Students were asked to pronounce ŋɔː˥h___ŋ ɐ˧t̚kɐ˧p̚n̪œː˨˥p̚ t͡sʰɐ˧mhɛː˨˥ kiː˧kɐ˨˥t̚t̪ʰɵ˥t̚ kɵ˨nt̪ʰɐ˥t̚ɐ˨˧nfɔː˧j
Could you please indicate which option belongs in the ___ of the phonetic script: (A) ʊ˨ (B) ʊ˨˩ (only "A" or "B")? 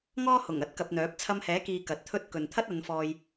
B